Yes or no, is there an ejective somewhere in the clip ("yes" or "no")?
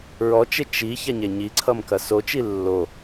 no